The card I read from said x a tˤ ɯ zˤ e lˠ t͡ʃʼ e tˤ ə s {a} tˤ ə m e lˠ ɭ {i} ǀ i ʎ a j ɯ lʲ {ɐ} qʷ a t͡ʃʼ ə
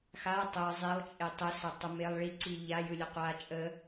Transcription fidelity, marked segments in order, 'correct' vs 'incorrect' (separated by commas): incorrect, correct, incorrect